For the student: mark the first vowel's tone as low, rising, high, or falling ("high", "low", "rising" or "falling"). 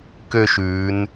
falling